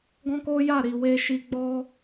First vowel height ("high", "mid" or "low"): mid